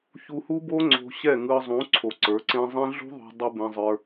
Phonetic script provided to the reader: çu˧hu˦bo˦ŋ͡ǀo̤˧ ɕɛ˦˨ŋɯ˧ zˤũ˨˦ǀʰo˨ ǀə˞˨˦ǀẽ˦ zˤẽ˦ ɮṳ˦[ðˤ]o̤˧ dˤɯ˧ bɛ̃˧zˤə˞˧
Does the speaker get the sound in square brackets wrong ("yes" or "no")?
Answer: no